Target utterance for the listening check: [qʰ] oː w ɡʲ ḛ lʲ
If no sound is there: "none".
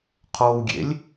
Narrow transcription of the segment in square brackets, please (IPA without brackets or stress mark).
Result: qʰ